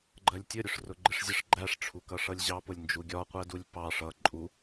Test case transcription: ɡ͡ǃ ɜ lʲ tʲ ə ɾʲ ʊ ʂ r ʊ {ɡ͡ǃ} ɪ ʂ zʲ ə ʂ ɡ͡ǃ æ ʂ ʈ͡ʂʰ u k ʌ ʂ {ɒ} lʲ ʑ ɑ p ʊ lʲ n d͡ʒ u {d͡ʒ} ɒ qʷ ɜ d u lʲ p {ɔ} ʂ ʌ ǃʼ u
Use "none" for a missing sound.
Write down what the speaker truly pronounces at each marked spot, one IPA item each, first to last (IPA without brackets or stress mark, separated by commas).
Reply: ɡ͡ǃ, ʌ, ɡʲ, ɑ